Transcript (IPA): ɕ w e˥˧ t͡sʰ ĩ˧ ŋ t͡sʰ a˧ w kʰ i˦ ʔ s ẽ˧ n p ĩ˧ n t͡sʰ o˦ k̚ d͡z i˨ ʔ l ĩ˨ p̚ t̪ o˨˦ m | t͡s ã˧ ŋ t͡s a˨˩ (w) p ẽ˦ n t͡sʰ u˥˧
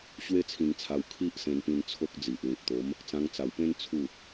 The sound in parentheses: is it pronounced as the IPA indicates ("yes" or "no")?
yes